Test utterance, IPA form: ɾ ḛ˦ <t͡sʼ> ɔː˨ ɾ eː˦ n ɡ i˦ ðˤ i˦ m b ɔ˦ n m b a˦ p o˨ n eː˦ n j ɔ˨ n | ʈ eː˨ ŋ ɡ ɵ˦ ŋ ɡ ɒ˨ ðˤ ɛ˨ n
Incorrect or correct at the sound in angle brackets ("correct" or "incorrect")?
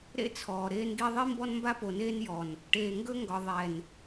incorrect